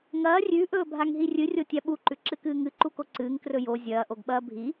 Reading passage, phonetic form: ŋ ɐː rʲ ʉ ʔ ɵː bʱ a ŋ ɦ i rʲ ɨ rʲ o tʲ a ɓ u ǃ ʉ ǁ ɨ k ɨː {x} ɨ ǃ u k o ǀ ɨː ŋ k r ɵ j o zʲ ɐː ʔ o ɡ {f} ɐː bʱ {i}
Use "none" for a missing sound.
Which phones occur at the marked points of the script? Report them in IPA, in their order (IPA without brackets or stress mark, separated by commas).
ŋ, ɓ, i